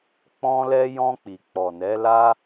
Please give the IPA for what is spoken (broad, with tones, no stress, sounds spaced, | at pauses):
k͡p ɔ̃˧ l ɛ˧ j ɔ̃˧ k͡p i˨ k͡p ɔ˨ n ɛ˨˦ l a˦